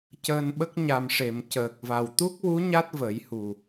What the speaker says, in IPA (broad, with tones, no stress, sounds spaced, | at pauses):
c əː˧ n ɓ ə˦˥ k̚ ɲ a˨˩ m ʂ e˨˩˨ m c əː˨˩ k̚ v a˨˩ w t̪ u˦˥ k̚ w u˧˥ ɲ a˦˥ t̚ v ə˨˩˦ j h u˨˩